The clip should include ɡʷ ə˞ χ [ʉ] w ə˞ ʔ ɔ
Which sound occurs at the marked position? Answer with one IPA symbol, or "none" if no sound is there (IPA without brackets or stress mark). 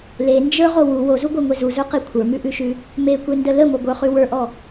ʉ